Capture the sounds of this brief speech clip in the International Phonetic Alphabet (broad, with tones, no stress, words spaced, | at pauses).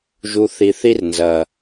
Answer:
ʒu˨ θi˨θi˧rnzɐ˨